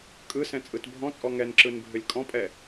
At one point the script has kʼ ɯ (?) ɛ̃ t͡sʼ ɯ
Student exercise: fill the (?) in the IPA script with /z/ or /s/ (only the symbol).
s